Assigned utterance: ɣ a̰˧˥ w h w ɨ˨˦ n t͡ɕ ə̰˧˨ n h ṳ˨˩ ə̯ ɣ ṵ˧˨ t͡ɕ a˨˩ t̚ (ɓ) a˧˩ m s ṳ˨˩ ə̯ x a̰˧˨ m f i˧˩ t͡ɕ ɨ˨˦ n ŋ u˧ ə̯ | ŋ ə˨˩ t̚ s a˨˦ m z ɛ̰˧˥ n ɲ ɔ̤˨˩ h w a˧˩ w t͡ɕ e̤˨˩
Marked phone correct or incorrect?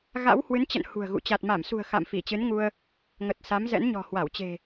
incorrect